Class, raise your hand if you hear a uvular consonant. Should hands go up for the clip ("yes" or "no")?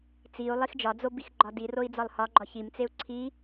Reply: no